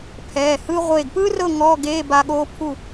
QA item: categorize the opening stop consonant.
aspirated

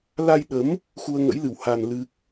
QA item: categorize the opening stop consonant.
implosive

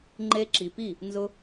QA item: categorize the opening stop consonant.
click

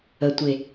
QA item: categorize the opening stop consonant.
plain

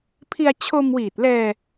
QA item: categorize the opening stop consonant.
aspirated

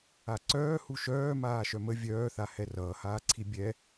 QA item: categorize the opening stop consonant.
click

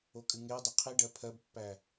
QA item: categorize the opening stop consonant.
ejective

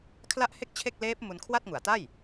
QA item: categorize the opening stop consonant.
aspirated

